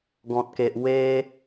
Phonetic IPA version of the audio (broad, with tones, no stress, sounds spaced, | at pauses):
ɡ ɔ̃˨ t̚ k e˨ ʔ w e˧